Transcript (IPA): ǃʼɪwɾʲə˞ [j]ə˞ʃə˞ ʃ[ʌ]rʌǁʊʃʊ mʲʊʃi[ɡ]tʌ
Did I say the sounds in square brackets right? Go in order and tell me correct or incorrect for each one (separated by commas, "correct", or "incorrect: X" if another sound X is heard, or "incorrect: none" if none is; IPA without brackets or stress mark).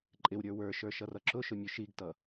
incorrect: w, correct, correct